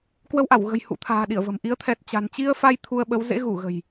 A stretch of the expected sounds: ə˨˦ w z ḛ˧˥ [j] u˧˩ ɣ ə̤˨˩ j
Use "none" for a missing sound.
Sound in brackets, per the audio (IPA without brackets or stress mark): ɣ